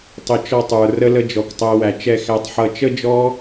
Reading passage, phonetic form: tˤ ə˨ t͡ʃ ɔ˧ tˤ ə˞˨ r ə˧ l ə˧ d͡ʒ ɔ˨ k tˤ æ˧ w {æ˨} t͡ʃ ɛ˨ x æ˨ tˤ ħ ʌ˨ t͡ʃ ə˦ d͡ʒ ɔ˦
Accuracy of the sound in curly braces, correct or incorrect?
correct